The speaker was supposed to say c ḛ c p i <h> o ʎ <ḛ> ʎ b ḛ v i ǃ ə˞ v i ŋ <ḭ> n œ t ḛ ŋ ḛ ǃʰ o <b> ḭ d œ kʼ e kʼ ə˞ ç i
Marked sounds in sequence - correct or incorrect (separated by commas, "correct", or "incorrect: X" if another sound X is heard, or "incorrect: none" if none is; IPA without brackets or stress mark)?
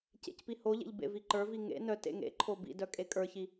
correct, correct, incorrect: ḛ, correct